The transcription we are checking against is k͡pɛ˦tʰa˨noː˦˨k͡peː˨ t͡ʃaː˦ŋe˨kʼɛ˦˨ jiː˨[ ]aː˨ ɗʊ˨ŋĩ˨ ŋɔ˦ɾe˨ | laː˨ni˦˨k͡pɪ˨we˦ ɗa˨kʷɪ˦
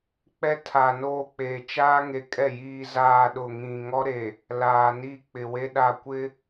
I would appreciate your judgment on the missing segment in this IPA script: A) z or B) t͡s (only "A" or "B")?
A